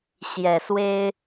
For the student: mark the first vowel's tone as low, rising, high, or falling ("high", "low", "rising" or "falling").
low